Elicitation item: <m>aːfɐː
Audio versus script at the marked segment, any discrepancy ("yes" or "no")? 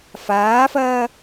yes